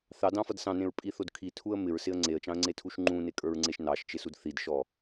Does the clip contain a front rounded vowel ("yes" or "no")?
no